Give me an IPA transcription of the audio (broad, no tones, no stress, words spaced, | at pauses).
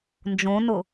nd͡ʒõnʊ